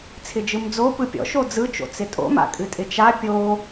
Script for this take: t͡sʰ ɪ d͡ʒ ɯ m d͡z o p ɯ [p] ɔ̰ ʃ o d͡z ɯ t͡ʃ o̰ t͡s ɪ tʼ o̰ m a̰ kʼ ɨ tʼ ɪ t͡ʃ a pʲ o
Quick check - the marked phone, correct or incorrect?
incorrect